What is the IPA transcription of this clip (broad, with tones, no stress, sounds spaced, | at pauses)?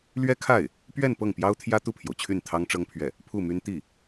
l ɥ ɛ˥ kʰ a˥˩ ɪ̯ | p ɥ ɛ˥˧ n p ɤ˥˩ ŋ p j ɑ˥ ʊ̯ t̪ʰ j ä˥ t̪ u˥˩ pʰ j o˩ ʊ̯ t͡ɕʰ y˥˩ n t̪ʰ ɑ˥ ŋ ʈ͡ʂ ɤ˥ ŋ pʰ ɥ ɛ˥˩ | pʰ u˥˩ m y˥ n t̪ i˥˩